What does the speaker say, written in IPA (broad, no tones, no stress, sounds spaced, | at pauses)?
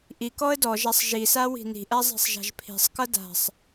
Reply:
ʔ i k ɔ ə̯ d ɔ ʒ æ sˤ ʒ i s a w i̤ n i̤ ʔ æ zˤ i̤ sˤ ʒ a̤ ʒ pʰ i̤ sˤ k ʌ d a̤ sˤ